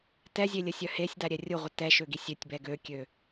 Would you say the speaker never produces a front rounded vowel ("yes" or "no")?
no